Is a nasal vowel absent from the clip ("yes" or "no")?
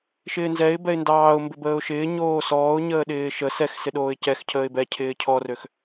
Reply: yes